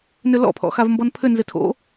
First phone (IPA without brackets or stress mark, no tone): n